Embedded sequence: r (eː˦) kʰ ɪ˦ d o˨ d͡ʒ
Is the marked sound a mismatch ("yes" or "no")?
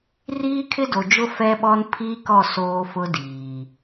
yes